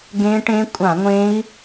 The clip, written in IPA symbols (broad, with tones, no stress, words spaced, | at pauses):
ɡẽ˦˥ʈẽ˦˥ kʷʼã˧˩˧ŋʷẽ˦˥i̯